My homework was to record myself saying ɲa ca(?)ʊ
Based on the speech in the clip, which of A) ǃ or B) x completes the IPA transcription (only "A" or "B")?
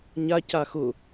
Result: B